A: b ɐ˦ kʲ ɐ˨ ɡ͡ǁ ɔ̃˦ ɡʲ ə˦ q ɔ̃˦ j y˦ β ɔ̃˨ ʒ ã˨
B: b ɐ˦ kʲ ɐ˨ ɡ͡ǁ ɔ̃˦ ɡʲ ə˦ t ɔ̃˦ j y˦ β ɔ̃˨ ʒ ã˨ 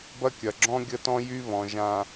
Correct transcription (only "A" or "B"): B